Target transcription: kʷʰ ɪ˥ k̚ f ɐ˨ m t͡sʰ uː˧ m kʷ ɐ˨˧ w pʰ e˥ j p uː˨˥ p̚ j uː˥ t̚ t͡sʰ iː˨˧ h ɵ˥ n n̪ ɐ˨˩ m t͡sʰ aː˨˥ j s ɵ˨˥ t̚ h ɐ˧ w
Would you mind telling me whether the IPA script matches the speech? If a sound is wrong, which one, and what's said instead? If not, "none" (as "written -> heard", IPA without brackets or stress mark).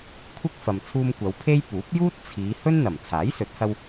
none